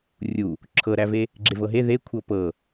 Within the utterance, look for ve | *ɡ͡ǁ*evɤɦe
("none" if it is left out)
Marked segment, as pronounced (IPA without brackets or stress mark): ɡ͡ǁ